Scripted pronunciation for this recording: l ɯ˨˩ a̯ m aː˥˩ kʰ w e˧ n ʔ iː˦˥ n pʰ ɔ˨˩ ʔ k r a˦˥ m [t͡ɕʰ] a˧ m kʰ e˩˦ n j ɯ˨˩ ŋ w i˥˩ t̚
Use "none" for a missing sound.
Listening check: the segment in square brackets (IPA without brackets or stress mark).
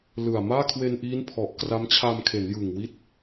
t͡ɕʰ